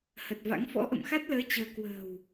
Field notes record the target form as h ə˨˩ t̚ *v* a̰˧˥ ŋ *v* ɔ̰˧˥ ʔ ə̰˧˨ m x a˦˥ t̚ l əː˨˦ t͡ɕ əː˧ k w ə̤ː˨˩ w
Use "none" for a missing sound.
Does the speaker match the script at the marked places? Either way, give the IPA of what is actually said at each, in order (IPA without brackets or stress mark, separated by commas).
v, f